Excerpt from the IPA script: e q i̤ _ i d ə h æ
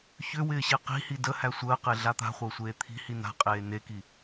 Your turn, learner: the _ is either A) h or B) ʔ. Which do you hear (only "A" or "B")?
A